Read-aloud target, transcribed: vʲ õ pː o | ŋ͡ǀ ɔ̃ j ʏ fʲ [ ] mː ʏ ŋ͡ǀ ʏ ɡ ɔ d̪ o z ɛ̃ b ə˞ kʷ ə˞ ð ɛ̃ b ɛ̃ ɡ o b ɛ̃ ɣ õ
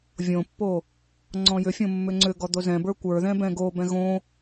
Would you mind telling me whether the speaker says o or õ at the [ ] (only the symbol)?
õ